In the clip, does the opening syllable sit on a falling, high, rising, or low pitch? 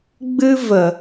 high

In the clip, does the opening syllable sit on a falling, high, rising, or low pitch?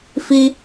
high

